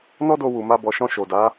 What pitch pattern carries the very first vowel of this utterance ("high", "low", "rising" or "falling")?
high